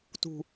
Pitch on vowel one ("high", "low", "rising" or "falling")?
low